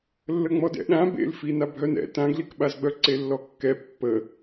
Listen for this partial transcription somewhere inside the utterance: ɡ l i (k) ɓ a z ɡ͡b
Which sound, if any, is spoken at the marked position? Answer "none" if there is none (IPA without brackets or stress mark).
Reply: k